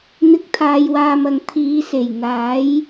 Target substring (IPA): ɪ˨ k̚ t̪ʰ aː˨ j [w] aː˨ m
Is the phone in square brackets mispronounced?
no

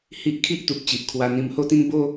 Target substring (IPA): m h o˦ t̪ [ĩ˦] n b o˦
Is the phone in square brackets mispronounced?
no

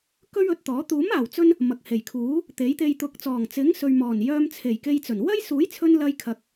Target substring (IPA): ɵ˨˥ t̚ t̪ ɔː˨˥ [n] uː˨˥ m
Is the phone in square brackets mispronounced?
yes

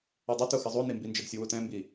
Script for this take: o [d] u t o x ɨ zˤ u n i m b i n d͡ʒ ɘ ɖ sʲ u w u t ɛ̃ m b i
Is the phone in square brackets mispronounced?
yes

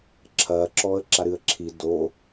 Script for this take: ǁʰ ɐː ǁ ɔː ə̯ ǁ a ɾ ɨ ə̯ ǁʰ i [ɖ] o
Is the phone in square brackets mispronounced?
yes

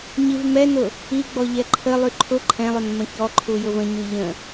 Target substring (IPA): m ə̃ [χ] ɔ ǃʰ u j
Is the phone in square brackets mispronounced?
yes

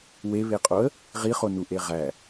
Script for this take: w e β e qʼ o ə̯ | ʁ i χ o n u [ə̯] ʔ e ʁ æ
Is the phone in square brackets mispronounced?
yes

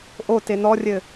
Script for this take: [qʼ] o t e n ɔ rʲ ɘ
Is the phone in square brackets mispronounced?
yes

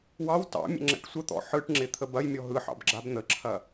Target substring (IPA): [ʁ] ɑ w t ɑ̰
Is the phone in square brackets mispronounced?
yes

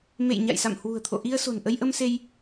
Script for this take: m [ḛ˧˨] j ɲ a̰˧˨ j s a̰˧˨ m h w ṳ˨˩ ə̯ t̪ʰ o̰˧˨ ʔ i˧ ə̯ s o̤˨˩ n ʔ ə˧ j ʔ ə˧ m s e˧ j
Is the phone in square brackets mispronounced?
no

